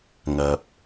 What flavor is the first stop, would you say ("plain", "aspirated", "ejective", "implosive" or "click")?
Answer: plain